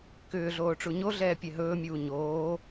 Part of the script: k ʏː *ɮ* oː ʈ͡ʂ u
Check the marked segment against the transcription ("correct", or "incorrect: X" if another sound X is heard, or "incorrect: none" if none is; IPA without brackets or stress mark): correct